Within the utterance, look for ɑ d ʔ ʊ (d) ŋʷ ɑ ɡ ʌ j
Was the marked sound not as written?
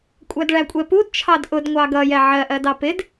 no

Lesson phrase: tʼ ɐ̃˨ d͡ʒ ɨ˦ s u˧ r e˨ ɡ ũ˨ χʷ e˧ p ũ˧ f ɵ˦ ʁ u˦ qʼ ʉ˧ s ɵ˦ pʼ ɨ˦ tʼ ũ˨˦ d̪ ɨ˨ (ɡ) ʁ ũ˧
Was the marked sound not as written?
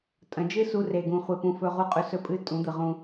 yes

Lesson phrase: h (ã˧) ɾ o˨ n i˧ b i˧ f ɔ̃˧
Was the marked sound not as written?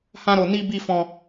no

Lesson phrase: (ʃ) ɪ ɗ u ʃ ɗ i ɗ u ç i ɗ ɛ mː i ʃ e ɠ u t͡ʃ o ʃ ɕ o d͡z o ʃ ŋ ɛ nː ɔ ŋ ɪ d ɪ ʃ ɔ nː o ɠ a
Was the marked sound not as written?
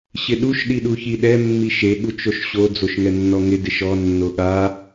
yes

